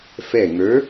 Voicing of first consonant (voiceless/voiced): voiceless